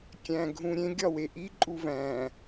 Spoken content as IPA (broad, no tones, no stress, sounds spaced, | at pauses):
kʲ æ̃ ɡʱ ũ ɾʲ ẽ ɡʲ ɒ w e ʔ i ǃʼ u v æ̃